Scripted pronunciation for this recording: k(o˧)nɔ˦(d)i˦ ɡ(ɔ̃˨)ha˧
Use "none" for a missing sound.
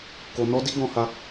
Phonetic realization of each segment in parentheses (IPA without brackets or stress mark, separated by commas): o˧, d, ɔ̃˧